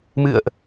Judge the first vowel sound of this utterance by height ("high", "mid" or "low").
high